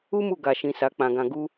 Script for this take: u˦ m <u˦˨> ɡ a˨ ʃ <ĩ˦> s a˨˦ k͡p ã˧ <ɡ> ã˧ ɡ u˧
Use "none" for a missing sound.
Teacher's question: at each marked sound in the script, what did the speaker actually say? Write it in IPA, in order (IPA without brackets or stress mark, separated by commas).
u˦˨, ĩ˨, ɡ